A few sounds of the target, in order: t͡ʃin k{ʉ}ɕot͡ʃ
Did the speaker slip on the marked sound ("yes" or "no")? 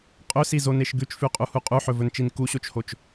yes